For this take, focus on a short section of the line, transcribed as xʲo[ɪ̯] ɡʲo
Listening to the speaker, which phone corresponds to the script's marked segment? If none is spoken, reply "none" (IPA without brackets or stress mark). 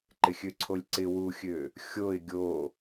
ɪ̯